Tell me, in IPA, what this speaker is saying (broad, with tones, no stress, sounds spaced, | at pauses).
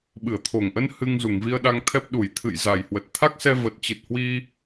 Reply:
ɓ ɨ˧˩ ə̯ t̪ʰ o˨˩ ŋ ʔ ə˧ n h ɨ˧ ŋ z u˧˩ ŋ v i˧ ə̯ ɗ a˧ ŋ t̪ʰ ɛ˦˥ p̚ ɗ u˧˩ j t̪ʰ ɨ̰˧˨ j z a˨˩ j h w ə˨˩ t̚ t̪ʰ a˦˥ k̚ s ɛ˧ v ə˨˩ t̚ t͡ɕ ɨ˨˩ t̚ h w i˧